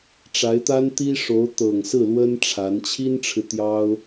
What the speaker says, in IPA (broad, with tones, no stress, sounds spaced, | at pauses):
ʈ͡ʂ a˧˥ ɪ̯ t̪ a˥ n t̪ i˥ ʂ o˧˥ ʊ̯ t̪ ɤ˨˩ ŋ s ɹ̩˥˩ l w ə˥ n ʈ͡ʂʰ a˧˥ n t͡ɕʰ i˥ n ʈ͡ʂʰ ɻ̩˨ t̪ j ɑ˥ ʊ̯